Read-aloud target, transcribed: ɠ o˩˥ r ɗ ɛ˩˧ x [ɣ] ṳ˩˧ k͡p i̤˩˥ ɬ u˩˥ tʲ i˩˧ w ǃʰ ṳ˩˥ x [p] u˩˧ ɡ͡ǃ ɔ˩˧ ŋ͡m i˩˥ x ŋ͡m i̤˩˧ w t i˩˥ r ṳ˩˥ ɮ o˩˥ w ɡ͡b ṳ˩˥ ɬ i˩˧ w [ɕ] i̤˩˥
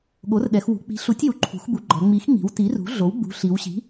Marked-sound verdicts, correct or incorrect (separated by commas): incorrect, incorrect, correct